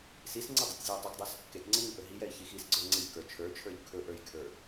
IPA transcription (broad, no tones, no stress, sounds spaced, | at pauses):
s i s ŋ͡ǀ ɪ dˤ u tʲ zʲ o j tˤ u k dˤ ə˞ s | k e k ŋ͡ǀ ɪ ɲ u ʔ ɵ ɦ i j ɛ i̯ ç i x i s ɡ͡ǀ ə˞ ŋ͡ǀ ɪ ʎ k ə˞ t͡ʃʰ ə˞ t͡ʃʰ ə˞ ʎ kʰ ɵ ʔ ə˞ j kʰ ə˞